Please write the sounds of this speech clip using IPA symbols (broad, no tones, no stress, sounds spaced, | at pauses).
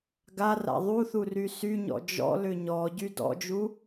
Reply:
ɡ a r a̰ ðˤ u θ u r y s y ɲ ɔ̰ d͡ʒ ɔ̰ l ʏ ɲ ɔ ɟ y d ɔ̰ d͡ʒ u